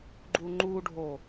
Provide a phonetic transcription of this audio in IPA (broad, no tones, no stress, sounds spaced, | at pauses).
ɡ͡ǃ u ŋ͡ǃ u ɖʱ o